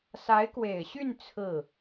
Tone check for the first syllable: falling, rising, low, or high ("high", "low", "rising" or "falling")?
rising